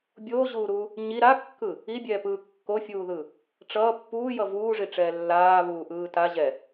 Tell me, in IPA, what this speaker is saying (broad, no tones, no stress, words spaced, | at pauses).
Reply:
bʲoːʑuːɾuː | ɲi ɾakːɯ | ibʲɛːpɯː kːofʲuːðɯ | ʈ͡ʂʌː pːuːjʌ vuːʐiʈ͡ʂɛː lːaːβuːʔɯː ta ʑɛ